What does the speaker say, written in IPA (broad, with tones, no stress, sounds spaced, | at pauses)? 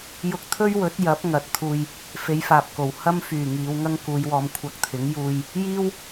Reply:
j ʊ˧ k̚ t̪ʰ ɵ˥ ɥ w ɵ˨˥ t̚ j ɐ˨˥ p̚ ŋ ɐ˨˥ t̚ t̪ʰ uː˧ j | f e˨˧ j f aː˨ p̚ k o˨˩ w h ɐ˥ m f yː˨˩ ŋ iː˨˧ w ŋ ɐ˥ ŋ k uː˨˧ j w ɔː˧ m kʷʰ ɐ˧ k̚ t̪ʰ ɪ˨˥ ŋ j uː˧ j | j iː˥ w